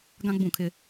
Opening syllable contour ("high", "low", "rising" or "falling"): high